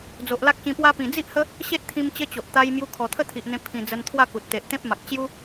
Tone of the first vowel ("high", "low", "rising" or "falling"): low